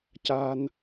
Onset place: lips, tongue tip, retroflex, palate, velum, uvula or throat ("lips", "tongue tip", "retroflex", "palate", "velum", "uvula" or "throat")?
palate